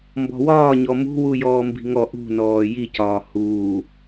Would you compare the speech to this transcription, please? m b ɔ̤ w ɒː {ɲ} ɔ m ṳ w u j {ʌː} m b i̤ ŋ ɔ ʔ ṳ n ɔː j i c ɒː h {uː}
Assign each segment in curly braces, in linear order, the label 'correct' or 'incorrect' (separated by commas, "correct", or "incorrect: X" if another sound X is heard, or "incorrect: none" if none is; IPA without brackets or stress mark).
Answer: correct, incorrect: ɔː, correct